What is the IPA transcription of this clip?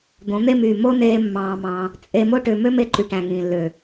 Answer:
d̪õ˨˦n̪e˦myː˨ mo˦neː˧ mːɑ̃ː˧mɑ̃˧ | t͡sʼe˧mo˦ ʈø˧ mø˦me˧ǃy˨ ʈæ̃˨ŋĩː˨lːø˨

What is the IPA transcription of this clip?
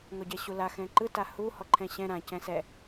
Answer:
ŋɔɟɛɕula xɛ̃ǃɯ tahu hɔǃʰɛ̃ɕɛ̃ ɾã cɛ̃sɛ

